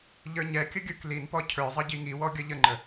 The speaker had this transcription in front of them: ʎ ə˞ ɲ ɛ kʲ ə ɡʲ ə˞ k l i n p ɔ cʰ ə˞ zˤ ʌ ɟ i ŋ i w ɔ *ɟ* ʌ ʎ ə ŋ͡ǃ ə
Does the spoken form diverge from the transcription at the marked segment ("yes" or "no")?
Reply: yes